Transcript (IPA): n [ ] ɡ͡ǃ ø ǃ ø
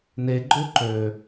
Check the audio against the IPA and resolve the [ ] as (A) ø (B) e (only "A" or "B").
B